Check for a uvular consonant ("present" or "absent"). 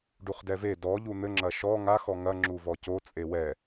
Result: present